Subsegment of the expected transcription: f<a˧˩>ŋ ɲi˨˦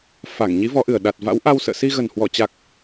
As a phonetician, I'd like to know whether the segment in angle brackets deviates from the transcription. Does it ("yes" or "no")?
no